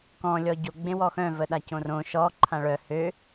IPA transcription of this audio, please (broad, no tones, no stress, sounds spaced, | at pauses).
k ɔ̃ lʲ ɔ ɟ o ɡ͡b ẽ w ɔ x œ̃ v ə ɗ a c õ r õ ʃ ɔ ǃʰ ã ɭ œ h ø